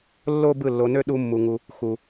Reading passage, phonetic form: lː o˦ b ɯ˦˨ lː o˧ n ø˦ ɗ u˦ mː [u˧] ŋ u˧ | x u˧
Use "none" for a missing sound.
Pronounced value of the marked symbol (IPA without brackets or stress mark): u˧